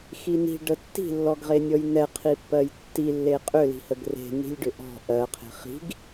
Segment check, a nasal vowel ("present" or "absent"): absent